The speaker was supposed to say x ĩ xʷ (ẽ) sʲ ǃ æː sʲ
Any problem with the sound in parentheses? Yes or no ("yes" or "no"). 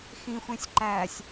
no